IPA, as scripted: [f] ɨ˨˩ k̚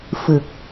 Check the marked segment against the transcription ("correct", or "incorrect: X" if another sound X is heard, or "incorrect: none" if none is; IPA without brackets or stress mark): correct